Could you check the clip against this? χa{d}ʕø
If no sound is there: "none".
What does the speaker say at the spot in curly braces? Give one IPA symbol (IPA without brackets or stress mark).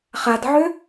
d